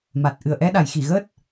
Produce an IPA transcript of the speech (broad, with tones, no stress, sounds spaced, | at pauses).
m a˨˩ t̚ ʔ ɨ˨˩ ə̯ ʔ ɛ˧ ɗ a˨˩˨ j x i˨˩˨ ɣ əː˦˥ t̚